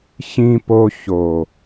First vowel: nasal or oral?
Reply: nasal